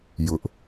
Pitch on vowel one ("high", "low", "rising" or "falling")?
high